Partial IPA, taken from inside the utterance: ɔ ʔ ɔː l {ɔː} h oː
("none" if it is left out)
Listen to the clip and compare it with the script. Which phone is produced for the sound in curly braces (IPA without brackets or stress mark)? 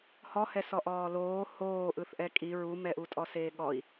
oː